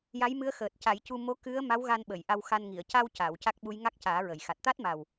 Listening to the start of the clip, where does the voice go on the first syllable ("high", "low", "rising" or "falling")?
rising